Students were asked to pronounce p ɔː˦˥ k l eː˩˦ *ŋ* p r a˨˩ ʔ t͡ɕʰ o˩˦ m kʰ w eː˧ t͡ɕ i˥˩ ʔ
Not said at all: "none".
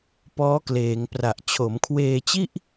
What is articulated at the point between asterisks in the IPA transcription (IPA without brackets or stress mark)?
ŋ